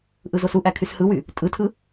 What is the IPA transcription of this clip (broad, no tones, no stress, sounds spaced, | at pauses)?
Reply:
ʔ ɯ z o s u ʔ æ kʰ y s h ɯ w y | tʼ ɯ tʰ ɯ